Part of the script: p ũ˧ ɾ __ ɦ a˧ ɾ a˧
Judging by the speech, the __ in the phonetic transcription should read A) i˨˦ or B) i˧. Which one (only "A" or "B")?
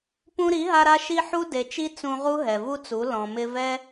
A